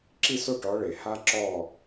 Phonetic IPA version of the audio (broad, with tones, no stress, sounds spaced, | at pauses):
ǁ i˥˨ s o˥˨ ʈ ɔ˨˦ ɭ e˩ h a˥ ǁ ɔ˥˨